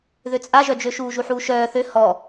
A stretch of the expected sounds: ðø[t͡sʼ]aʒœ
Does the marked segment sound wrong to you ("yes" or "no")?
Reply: no